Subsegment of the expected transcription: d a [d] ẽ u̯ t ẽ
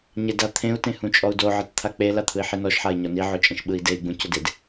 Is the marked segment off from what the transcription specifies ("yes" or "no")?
yes